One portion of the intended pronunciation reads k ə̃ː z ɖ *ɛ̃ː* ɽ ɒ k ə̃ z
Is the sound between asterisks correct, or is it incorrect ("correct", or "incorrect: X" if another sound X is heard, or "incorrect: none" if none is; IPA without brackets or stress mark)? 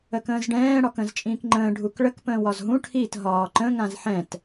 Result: correct